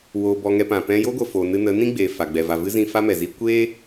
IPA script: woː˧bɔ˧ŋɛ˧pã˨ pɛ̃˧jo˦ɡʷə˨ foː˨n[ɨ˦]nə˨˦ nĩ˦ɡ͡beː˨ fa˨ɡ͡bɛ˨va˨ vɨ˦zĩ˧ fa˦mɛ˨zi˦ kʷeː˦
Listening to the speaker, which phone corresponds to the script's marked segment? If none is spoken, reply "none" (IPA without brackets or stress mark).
ɨ˧